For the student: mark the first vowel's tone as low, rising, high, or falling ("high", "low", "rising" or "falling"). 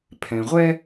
low